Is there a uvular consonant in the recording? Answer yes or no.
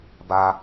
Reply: no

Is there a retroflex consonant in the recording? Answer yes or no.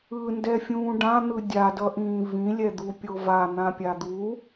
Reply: yes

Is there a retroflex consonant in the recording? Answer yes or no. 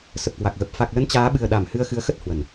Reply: no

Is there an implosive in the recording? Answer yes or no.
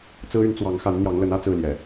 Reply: no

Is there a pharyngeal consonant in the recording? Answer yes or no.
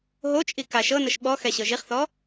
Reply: no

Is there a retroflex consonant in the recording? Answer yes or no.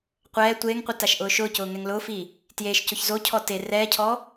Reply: no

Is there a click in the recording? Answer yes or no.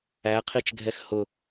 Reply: no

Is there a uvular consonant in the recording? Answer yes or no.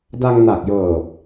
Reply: no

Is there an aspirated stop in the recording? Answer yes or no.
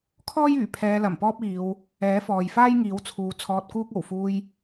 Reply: yes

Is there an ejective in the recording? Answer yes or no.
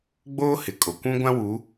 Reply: yes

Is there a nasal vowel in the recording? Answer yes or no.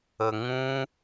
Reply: yes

